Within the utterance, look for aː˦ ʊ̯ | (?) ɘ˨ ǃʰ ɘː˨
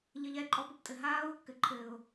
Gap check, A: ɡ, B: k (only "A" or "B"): B